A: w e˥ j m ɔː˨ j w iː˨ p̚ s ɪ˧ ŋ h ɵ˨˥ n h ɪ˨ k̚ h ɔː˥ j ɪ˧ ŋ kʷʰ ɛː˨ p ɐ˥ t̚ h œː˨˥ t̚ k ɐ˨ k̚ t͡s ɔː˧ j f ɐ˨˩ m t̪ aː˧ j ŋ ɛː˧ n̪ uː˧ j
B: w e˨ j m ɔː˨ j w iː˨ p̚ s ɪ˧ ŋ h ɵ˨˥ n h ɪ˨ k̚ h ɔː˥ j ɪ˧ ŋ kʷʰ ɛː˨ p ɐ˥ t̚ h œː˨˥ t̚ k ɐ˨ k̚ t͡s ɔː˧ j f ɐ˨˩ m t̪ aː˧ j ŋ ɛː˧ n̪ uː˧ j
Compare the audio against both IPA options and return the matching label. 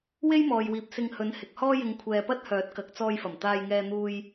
A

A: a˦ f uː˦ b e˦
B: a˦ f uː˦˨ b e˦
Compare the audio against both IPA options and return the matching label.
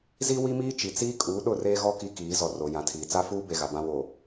A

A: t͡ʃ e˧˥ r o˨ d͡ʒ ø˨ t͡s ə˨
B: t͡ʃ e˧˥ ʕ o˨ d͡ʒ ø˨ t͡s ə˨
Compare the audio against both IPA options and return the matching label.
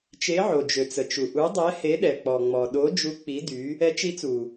B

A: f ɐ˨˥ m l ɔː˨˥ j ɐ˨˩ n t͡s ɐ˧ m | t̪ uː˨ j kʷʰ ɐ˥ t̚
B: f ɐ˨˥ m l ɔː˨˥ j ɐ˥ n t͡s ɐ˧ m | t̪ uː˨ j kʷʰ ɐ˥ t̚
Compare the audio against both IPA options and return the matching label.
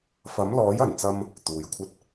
A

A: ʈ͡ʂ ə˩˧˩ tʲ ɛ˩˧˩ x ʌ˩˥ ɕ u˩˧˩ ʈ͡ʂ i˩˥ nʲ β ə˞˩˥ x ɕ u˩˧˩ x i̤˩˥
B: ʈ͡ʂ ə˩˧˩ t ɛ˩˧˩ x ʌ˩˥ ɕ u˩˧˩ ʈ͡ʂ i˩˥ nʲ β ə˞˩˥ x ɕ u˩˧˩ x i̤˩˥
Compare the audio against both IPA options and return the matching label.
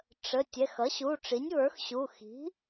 A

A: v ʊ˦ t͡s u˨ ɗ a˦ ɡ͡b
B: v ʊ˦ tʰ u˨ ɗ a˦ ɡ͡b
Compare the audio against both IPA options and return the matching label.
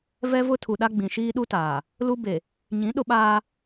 B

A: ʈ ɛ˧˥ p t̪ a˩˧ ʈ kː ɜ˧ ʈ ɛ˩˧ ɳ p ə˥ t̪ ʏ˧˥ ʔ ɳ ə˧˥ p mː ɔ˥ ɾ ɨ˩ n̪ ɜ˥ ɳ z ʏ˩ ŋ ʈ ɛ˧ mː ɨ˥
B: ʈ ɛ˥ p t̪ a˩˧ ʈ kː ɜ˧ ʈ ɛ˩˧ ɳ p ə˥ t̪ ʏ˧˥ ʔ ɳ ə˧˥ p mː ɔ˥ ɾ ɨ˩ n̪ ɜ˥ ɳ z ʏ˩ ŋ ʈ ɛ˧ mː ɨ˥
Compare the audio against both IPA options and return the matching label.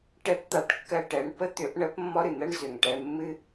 A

